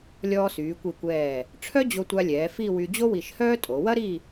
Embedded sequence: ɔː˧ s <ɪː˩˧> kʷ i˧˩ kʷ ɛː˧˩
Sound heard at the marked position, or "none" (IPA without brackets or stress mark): yː˩˧